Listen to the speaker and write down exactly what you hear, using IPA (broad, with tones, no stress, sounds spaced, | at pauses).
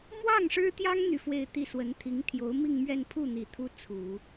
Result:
m w ɑ˥˩ ŋ ʂ ɻ̩˥ t̪ j ɑ˥ ŋ n̪ y˥˧ f w e˥˧ ɪ̯ t̪ i˥˩ s w ə˧˥ n t̪ʰ i˧˥ ŋ t̪ʰ j o˧˥ ʊ̯ m i˥˧ ŋ m ɥ ɛ˥˧ n pʰ u˥˩ n̪ i˨˩ t̪ʰ u˥ t͡sʰ u˨˩˦